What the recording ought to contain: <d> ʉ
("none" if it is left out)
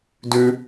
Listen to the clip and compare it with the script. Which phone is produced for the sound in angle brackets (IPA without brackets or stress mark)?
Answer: d